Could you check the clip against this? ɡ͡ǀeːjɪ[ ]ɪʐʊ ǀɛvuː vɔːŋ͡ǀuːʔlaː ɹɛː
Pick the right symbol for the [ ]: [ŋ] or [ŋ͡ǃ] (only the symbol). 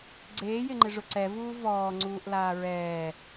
ŋ͡ǃ